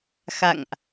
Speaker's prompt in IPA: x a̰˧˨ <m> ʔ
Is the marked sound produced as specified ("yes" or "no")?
no